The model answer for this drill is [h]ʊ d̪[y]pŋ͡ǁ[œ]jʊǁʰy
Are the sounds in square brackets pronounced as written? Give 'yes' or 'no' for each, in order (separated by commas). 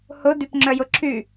yes, yes, yes